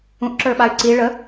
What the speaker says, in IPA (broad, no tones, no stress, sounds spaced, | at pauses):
ũ ʔ ǁ ə˞ ɓ a y̯ ǀ i ɭ ə